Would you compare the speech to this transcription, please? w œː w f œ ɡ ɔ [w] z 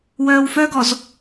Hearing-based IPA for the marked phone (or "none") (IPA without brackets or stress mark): none